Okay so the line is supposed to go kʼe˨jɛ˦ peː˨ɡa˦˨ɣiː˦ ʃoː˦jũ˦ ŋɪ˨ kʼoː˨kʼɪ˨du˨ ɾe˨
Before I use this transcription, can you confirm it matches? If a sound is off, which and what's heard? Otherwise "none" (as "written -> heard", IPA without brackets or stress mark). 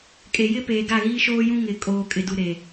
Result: ɛ˦ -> ɪ˦